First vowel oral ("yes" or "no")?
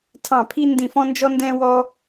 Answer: no